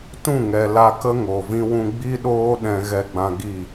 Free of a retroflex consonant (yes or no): yes